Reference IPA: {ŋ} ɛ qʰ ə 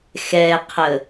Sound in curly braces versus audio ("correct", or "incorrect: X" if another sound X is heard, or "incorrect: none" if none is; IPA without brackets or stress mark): incorrect: x